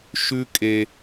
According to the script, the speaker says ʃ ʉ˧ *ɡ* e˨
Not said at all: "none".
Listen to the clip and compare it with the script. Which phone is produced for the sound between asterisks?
kʼ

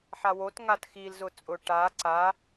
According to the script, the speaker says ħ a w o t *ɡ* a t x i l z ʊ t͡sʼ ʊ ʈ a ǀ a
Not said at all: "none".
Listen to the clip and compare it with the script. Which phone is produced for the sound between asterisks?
ŋ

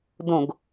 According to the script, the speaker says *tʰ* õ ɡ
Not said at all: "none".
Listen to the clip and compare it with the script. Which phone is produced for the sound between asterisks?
d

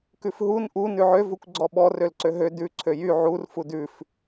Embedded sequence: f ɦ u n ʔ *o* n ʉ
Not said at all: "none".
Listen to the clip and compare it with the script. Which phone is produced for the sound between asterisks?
u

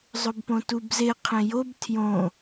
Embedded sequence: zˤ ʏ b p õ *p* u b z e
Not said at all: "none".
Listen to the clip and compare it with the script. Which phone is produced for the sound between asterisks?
t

